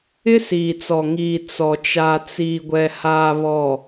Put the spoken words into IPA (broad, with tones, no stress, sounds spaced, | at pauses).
ɪ˦ s iː˨ t͡s ɔ˨ ŋ iː˨ t͡s ɔ˨ t͡ʃ a˨ t͡s iː˨ ɡʷ ɛ˨ h aː˨ β ɔ˨